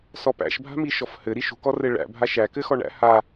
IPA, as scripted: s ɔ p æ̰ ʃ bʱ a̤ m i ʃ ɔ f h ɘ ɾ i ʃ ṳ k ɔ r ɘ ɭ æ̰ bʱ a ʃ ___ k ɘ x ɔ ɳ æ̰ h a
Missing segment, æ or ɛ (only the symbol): æ